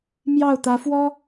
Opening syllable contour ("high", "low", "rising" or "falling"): falling